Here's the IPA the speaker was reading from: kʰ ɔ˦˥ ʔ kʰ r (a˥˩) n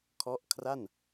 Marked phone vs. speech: correct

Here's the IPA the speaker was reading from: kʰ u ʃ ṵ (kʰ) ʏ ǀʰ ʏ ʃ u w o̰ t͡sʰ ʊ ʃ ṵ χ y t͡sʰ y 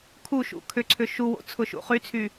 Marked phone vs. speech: correct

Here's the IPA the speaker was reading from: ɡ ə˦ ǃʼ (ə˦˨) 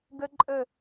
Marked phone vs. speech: correct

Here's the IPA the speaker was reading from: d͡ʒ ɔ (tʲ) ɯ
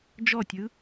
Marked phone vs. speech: correct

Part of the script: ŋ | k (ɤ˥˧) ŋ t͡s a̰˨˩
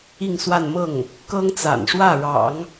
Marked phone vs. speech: incorrect: ɤ˥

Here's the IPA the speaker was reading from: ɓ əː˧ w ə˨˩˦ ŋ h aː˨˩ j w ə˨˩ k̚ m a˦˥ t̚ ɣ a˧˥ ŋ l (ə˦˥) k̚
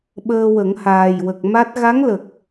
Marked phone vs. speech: incorrect: ə˨˩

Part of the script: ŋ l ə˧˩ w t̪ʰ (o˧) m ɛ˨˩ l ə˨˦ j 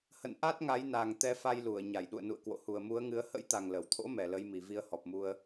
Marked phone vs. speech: incorrect: o̰˧˥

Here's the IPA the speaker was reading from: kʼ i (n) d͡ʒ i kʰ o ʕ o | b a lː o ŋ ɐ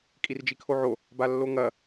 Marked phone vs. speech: incorrect: r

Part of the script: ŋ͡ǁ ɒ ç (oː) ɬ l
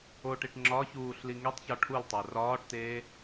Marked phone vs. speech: incorrect: uː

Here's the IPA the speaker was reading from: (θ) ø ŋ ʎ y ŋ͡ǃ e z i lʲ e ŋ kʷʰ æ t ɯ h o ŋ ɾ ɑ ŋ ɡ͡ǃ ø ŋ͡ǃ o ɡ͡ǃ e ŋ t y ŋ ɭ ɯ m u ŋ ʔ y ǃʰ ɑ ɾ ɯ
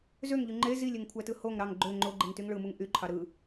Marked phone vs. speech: incorrect: z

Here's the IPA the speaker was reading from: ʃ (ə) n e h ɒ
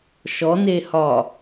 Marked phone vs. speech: incorrect: ɔ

